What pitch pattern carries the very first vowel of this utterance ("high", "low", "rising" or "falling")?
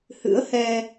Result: rising